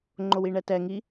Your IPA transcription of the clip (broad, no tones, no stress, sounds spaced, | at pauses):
ŋ͡ǃ o w i ɳ ɛ t ɛ ŋ i